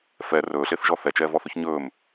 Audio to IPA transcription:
f ɛ r ɵː ɬ e θ ʒ ɔ θ ɛ t͡ʃ ɛː v ɔ θ ɵ ç ɲ ɵː m

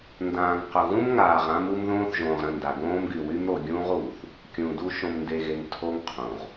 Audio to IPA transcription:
n d ãː˨ ŋ q ʊ˨ ɣ ũ˦ m ŋ aː˨ ʁ ã˦ m u˦ m ð õː˦ θ ʒ õː˨ ʁ ɾ ə̃˦˨ n d a˨ ɡ õː˦ m ɡ y˨ w y˦ m ɾ o˨ ɡʲ ũː˦ ʁ uː˨ θ | kʲ ũ˨ d u˦ ʃ õ˨ m n d e˨ ɣ e˨ ŋ tʰ o˦ ŋ qʰ ũ˨ ʁ

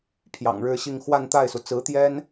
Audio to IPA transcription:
pʰ j ɑ̰˨˩ ŋ ɻ ɻ̩˥˧ ɕ i˥˧ ŋ x w a˥˧ n t̪ a˥˩ ɪ̯ s u˩ t͡s ɹ̩˧˥ t̪ j ɛ˥ n

